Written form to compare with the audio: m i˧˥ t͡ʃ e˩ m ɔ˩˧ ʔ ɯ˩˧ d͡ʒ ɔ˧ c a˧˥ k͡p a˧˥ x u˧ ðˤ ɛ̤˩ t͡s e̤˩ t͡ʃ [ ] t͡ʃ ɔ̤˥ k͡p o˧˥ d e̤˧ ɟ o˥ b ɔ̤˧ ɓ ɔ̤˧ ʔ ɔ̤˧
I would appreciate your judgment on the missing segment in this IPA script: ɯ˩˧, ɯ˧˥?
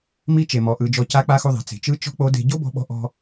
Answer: ɯ˧˥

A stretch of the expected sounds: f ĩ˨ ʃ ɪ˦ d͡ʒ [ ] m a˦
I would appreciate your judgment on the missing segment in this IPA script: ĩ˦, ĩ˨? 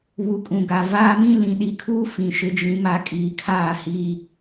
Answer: ĩ˦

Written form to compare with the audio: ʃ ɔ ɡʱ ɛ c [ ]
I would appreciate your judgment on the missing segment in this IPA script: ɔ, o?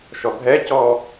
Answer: ɔ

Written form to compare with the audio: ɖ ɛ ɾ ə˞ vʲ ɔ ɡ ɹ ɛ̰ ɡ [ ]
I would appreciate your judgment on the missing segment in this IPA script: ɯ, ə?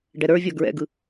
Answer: ɯ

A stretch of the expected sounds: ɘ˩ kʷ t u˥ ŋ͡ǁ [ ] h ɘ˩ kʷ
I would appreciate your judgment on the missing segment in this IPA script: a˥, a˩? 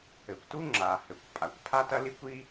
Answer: a˩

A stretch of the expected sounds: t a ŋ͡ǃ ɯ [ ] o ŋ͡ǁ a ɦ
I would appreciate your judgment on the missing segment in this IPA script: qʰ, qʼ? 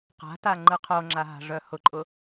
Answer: qʰ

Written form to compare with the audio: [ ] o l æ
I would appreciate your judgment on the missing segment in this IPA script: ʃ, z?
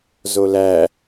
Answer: z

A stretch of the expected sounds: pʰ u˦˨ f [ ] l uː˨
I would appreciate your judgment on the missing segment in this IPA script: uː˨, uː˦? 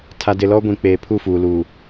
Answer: uː˨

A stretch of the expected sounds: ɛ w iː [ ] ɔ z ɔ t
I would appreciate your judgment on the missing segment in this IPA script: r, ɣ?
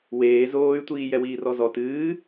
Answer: r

